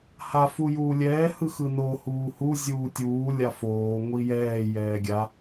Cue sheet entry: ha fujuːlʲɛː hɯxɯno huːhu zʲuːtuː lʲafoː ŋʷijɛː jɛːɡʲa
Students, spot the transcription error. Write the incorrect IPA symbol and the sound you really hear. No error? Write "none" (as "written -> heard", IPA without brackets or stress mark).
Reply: t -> tʲ